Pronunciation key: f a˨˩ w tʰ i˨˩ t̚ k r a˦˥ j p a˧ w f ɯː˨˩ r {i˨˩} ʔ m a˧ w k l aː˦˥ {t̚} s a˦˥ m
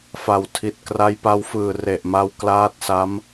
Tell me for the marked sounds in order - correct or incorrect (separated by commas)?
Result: incorrect, correct